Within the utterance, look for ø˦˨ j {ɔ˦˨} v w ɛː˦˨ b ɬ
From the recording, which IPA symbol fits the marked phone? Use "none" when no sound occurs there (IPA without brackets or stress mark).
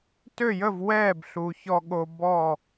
ə˦˨